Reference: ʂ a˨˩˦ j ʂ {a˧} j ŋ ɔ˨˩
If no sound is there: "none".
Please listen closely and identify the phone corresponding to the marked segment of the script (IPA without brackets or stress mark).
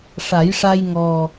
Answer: a˧